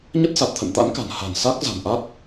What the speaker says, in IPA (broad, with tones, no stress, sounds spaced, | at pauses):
ɲ ə˦˥ t̚ s a˨˩ t̚ t̪ʰ ə̰˧˨ n t̪ a̰˧˥ n k a̤˨˩ n h a̤˨˩ n s a˦˥ k̚ z a̤˨˩ n ʔ a˦˥ t̚